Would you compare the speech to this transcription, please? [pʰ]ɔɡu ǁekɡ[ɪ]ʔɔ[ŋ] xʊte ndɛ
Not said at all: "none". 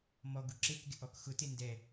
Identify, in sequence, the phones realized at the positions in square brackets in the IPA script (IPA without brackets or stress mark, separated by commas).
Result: m, ɪ, k